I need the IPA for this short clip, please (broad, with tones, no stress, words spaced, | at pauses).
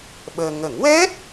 ɓəː˧ ŋə˨˩˦ŋwɛ˦˥t̚